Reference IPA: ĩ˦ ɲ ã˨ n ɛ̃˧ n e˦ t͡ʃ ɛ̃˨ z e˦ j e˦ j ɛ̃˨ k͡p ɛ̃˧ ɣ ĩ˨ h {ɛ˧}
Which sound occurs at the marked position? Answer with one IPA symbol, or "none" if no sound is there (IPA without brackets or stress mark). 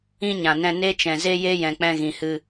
ɨ˧